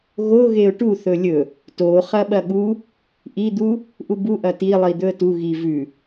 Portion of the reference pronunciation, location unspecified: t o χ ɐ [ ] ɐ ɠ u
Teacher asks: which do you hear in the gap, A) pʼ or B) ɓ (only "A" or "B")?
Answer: B